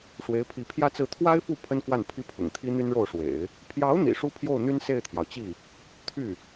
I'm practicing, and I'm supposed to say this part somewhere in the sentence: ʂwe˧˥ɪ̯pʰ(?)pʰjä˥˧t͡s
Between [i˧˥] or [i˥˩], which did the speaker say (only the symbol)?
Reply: i˧˥